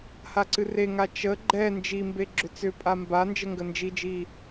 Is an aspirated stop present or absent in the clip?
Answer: absent